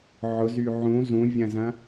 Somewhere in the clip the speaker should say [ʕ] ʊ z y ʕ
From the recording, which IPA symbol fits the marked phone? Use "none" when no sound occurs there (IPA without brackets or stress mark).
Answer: ʕ